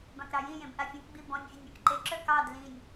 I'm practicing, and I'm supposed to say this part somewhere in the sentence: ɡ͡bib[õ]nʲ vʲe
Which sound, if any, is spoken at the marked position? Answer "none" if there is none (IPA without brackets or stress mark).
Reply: ɔ̃